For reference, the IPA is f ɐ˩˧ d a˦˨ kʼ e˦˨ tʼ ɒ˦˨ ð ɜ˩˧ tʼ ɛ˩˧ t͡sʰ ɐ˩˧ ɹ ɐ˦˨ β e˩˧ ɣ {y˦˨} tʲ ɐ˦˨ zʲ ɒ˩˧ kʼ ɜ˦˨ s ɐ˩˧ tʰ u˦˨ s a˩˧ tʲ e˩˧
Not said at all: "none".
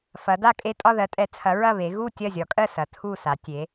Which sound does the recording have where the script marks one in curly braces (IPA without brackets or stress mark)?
u˦˨